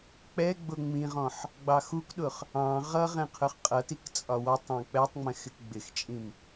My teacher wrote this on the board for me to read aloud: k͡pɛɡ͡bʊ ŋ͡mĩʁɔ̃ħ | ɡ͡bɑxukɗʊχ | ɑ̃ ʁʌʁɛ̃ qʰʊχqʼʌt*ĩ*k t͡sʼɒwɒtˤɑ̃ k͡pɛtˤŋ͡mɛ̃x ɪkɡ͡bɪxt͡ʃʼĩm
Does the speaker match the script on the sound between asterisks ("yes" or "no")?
no